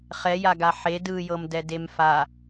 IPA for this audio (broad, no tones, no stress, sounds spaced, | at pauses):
χ ɛ j a ɡ a ħ e d ɯ j ɤ m d ɛ d e m f a